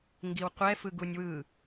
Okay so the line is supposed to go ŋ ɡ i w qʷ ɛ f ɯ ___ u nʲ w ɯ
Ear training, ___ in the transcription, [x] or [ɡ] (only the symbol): ɡ